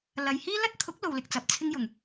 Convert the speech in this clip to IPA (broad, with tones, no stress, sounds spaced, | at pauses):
l ɐ˨ j h iː˥ l ɐ˥ t̚ t̪ʰ ʊ˨˥ k̚ l o˨ w l ɪ˨ k̚ t͡s ɐ˨ p̚ t͡sʰ ɪ˥ ŋ j ʊ˨˩ ŋ